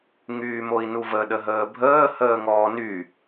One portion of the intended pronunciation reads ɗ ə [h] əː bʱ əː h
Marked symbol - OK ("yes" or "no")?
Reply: no